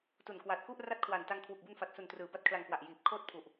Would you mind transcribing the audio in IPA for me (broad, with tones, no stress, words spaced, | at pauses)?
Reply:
tu˨˩nkwa˨˩t̚ku˥˩ʔ ra˦˥t̚kʰwa˨˩nta˧ŋ kʰwu˨˩k̚bu˧nfa˨˩t̚su˨˩n trɯː˩˦ba˦˥t̚ kʰla˧ŋkwa˨˩ʔjiː˨˩p̚ kʰoː˦˥t̚pʰu˨˩ʔ